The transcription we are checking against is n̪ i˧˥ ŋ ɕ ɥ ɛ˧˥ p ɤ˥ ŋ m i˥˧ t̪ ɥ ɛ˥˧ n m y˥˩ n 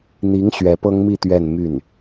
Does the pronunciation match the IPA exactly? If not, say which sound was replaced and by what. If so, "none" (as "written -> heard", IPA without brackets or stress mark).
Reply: none